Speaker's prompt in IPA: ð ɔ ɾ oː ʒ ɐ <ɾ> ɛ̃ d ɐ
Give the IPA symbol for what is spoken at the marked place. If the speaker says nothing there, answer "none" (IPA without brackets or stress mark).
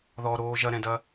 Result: ɾ